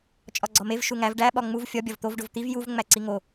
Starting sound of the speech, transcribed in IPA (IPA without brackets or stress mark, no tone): t͡ʃʼ